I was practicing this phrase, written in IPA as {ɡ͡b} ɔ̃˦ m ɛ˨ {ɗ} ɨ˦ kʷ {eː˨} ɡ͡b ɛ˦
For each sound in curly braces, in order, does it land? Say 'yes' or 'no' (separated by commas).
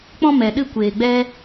no, yes, yes